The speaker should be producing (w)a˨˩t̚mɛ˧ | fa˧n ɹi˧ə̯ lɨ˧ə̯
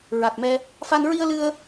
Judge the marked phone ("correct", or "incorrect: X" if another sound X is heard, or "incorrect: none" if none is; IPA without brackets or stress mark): incorrect: ɹ